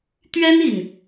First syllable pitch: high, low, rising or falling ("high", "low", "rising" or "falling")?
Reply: high